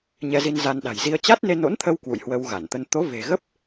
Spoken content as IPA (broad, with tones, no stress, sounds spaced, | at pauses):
ɲ ɛ˧ z i˧ n z a˧ n ɗ a̤˨˩ j z i˧ ə̯ t͡ɕ a˦˥ t̚ n e˧ n o̰˧˥ n t̪ʰ ə˧ w k w ṵ˧˨ j h w ə˧ w ɣ a˧˩ n t̪ ə˧ n t̪ o˨˦ v e̤˨˩ ɣ ə˦˥ p̚